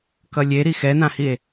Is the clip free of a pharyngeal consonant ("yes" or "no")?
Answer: yes